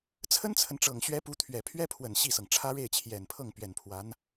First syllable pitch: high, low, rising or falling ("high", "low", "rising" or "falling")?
high